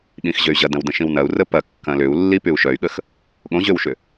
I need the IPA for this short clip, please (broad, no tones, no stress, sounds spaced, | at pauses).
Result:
ɠ ĩ x ʑ ø y̯ ʑ ɐ d ɐ̃ w d ə̃ ʃ ĩ w n ɐ u̯ r ə p ɐ kː ɐ̃ l ʏ u̯ lː i p y u̯ ʃ œ y̯ ɠ ə x | ɠ õ ʑ ø w ʃ ʏ